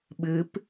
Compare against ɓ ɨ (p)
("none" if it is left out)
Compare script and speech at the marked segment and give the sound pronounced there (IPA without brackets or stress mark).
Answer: p